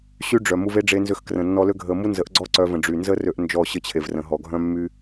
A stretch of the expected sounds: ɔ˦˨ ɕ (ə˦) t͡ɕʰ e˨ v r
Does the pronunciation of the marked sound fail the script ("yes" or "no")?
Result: no